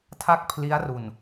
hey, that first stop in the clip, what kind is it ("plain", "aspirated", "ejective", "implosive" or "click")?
aspirated